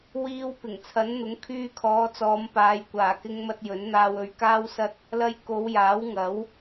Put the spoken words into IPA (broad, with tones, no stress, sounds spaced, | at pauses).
w iː˧ w p ɪ˨˩ ŋ t͡sʰ ɐ˨˥ n n̪ ʊ˨˥ ŋ kʰ yː˧ kʰ ɔː˨˧ t͡s ɔː˨˧ m p aː˨˧ j kʷ aː˨˩ k ɪ˧ ŋ m ɐ˧ t̚ j ɵ˨˥ n n̪ aː˧ w ɵ˨˧ ɥ k aː˥ w s ɐ˥ t̚ | l ɐ˧ j k o˨˧ w j aː˨˥ w ŋ ɐ˨˥ w